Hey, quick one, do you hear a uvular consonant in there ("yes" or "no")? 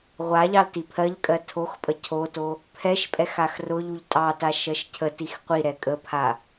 yes